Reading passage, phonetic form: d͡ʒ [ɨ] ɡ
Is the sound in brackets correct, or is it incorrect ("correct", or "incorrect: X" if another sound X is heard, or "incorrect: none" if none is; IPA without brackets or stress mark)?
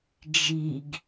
incorrect: i